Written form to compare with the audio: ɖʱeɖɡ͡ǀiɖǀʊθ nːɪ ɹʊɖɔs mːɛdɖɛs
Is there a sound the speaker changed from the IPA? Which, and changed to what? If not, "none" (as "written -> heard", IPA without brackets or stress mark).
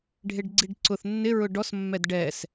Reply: none